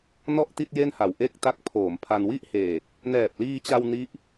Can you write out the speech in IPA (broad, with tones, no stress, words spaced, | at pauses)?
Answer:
nɔ˥˩ʔti˥˩t̚ je˥˩nha˨˩w ʔe˥˩k̚ta˦˥k̚ pʰoː˩˦m pʰa˧n wi˥˩ʔheː˨˩k̚ | nɛː˨˩p̚liː˧t͡ɕa˧w ni˦˥ʔ